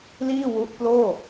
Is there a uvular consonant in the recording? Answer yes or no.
no